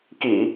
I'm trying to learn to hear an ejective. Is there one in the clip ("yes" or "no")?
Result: no